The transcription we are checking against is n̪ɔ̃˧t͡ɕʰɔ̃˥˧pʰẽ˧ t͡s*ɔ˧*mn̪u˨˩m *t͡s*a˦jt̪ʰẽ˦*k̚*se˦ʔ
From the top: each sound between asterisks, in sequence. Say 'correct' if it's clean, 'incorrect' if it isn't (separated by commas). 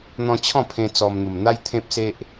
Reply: correct, incorrect, incorrect